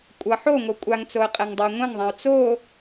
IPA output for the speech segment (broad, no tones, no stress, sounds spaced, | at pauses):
kʷʼ ʌ ħ o ŋ o kʷʼ a ŋ t͡s o ə̯ qʼ ɛ ŋ dˤ o ɪ̯ ŋʷ ɛ̃ ŋ ðˤ ã ʊ̯ t͡s o